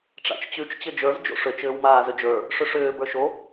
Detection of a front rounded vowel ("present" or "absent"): present